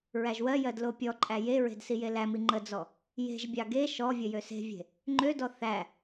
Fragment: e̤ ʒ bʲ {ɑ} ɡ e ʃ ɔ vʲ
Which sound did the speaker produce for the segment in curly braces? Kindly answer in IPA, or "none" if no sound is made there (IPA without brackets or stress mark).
ɑ